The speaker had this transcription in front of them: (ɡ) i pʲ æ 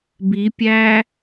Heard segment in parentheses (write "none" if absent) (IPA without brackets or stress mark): b